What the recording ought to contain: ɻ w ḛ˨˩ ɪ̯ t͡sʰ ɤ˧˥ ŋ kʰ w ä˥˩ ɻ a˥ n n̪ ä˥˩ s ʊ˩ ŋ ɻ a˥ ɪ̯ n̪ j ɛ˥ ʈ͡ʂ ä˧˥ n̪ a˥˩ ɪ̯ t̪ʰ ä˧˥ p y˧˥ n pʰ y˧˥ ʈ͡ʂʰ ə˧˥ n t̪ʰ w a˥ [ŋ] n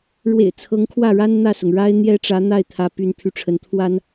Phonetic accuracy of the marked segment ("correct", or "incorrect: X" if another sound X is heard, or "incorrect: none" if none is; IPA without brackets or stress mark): incorrect: none